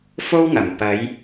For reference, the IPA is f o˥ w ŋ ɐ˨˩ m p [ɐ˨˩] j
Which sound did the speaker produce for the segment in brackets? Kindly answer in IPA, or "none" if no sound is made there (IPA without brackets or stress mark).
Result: ɐ˨˧